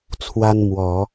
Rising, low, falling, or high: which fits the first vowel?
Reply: high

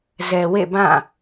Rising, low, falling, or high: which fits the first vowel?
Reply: low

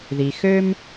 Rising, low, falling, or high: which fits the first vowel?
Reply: low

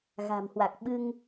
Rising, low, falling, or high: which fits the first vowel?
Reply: low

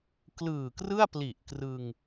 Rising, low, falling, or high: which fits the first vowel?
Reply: low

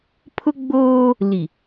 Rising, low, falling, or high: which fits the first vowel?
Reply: high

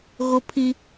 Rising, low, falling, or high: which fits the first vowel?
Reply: high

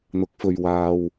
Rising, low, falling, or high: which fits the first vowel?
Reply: rising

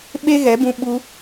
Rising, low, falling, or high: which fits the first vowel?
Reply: high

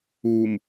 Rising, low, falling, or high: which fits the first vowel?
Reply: low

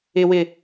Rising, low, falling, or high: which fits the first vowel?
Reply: low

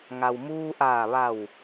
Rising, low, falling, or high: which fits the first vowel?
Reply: low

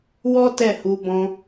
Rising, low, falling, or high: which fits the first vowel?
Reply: high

